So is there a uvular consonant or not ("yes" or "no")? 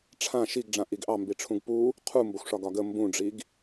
yes